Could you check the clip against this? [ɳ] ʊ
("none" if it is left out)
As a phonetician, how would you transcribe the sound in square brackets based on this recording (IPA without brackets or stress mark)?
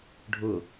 ɖʱ